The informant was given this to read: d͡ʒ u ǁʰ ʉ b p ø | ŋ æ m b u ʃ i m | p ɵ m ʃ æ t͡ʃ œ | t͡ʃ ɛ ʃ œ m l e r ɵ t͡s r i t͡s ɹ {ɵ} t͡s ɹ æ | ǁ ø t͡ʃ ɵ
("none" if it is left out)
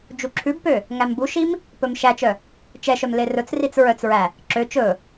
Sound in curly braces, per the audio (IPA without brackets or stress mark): œ